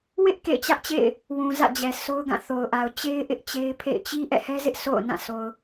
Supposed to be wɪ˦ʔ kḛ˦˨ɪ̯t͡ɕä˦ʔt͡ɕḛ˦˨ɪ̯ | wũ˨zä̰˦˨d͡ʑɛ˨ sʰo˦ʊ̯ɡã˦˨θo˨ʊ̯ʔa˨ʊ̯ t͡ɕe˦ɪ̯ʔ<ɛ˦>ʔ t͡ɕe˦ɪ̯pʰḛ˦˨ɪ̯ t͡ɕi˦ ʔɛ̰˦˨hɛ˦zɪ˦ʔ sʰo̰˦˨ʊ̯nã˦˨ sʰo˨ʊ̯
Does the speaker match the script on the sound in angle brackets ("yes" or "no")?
no